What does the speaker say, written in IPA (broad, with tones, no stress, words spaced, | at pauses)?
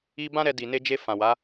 i˧ bã˦ɾɛ˧ di˨ne˧d͡ʒe˧ fã˨wa˨˦